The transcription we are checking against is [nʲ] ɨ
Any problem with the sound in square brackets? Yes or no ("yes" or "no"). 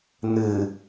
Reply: yes